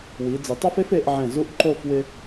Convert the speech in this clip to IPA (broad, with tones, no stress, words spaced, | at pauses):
wi˩˧ d͡zɪ˩˧tˤa˥fe˥f e˩˧ʔʕɛ̃˧˩ zu˥ʔǃo˥˧f wɪ˧